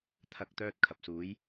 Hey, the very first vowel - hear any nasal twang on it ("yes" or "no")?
no